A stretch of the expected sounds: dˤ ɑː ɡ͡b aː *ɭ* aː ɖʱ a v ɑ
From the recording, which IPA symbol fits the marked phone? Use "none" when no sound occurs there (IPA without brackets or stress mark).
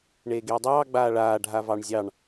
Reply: ɭ